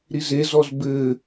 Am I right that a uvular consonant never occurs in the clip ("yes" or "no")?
yes